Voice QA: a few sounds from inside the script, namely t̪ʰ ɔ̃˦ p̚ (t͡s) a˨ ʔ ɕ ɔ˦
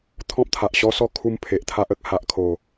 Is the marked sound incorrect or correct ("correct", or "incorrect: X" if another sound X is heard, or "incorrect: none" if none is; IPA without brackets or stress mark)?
incorrect: t̪ʰ